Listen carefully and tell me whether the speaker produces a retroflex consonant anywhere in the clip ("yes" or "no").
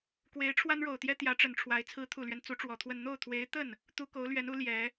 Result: yes